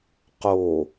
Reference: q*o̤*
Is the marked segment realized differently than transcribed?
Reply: yes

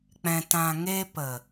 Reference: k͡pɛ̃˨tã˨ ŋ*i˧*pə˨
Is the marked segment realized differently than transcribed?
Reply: yes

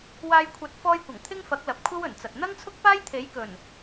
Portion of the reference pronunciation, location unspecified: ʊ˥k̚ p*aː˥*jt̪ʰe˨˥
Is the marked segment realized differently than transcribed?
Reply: no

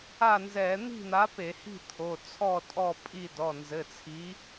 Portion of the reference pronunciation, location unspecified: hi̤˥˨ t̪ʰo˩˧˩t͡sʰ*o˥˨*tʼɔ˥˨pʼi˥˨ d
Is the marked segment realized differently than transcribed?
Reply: yes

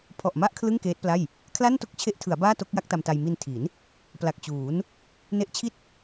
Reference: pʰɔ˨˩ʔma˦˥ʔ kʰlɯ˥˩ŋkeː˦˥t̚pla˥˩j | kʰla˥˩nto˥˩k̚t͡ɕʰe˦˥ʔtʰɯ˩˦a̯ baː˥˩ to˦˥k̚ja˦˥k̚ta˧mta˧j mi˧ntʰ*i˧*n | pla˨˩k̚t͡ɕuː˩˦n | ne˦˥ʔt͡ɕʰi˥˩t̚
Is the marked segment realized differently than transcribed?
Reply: yes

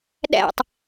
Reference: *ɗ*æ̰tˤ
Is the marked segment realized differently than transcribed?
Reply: no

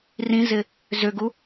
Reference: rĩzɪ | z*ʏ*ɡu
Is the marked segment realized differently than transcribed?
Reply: no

